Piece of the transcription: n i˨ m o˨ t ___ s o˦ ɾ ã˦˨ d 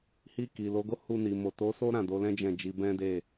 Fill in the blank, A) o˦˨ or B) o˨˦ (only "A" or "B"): B